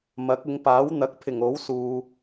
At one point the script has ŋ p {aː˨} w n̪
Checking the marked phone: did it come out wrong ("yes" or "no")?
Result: yes